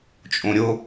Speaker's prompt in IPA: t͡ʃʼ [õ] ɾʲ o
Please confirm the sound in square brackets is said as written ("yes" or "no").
yes